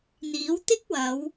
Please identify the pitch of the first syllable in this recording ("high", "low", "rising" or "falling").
rising